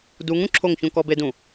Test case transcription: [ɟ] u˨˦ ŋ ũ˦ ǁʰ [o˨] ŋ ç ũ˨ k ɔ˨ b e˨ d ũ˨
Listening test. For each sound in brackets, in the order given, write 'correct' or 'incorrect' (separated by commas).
incorrect, incorrect